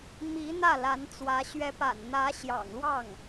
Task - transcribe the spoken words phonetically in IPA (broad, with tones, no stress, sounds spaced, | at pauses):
m i˧˥ n̪ ä˥˩ l a˧˥ n t͡s w ä˧˥ ɕ ɥ ɛ˧˥ p a̰˨˩ n n̪ ä˧˥ ɕ j ɑ̰˨˩ ŋ l w ɑ˥˩ ŋ